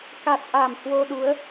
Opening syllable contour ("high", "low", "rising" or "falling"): low